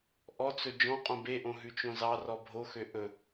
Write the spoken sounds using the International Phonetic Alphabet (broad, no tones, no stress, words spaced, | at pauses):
ʔɔt͡sɵ d͡ʒɔ̃ qʼõbeʔõ ɦʉt͡ʃõzɑrɔ bʱoxø ʔɵ